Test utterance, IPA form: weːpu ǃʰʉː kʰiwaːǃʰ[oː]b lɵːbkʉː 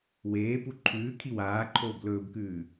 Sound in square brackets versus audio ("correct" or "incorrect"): correct